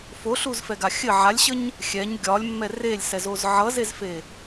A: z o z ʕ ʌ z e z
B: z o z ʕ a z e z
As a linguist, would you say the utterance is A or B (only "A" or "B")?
A